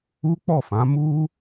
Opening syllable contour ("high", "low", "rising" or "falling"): high